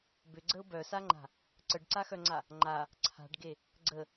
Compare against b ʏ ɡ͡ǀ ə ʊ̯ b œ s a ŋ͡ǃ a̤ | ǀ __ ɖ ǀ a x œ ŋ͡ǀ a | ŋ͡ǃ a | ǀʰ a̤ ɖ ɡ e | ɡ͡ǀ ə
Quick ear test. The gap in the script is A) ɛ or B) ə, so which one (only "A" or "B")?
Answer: B